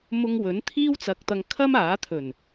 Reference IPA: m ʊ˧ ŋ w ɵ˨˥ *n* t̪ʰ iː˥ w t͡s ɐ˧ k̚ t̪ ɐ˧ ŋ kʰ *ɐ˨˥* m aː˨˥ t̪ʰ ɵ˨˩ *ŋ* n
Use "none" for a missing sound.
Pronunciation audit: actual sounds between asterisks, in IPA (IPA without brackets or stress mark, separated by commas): n, ɐ˥, none